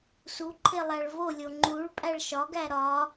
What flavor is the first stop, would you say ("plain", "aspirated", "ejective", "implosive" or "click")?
click